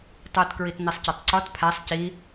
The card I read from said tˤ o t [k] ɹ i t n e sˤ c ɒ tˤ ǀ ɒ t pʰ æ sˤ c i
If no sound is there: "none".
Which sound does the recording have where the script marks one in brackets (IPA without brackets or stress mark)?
k